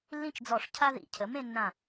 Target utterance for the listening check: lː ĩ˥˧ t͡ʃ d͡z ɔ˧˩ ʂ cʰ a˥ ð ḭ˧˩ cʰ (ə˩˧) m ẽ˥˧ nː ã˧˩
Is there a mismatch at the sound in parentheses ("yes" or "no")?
no